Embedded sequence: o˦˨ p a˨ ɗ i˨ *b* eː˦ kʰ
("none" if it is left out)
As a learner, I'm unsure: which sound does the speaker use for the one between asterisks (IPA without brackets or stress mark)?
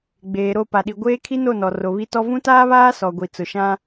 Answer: ɡʷ